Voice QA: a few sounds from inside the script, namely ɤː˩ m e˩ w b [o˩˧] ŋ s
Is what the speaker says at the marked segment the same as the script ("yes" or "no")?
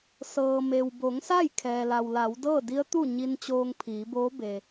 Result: yes